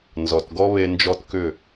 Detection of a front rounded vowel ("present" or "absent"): present